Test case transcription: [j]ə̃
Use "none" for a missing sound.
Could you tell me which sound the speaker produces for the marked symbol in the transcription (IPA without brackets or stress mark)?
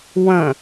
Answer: w